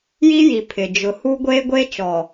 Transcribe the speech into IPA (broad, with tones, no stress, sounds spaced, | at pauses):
j i˦ j i˨ pʰ ɪ˨ d͡ʒ ʊ˨ h u˦ ɡʷ eː˦ ɡʷ eː˦ t͡ʃ ɔ˨